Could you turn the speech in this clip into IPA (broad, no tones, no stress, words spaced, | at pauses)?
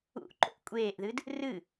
ṵʔǃo̰ʔ kʷʼeːʔðɨd | rɨ